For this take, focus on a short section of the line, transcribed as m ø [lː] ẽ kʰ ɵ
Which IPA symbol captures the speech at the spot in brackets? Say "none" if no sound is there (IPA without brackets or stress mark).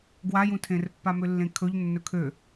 lː